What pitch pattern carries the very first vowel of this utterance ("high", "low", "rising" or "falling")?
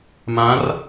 rising